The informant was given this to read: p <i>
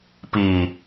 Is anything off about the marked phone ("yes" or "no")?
no